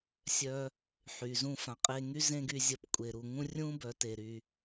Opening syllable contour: high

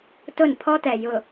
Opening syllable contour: falling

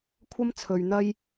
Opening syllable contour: high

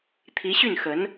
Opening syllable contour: rising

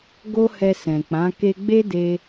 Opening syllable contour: high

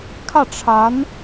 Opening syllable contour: falling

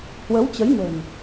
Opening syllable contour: rising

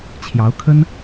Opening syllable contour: rising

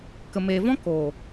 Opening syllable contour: low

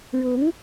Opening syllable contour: rising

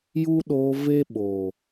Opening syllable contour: high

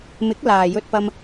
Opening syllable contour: rising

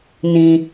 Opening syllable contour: low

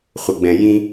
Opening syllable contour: low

